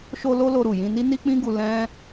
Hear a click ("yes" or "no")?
no